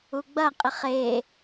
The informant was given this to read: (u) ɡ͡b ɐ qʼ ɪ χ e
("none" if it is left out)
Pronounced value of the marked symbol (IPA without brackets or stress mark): u